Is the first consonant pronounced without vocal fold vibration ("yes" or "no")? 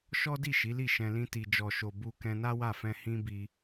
yes